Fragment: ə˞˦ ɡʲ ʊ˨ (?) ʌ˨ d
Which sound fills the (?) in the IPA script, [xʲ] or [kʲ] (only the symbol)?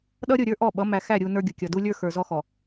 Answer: kʲ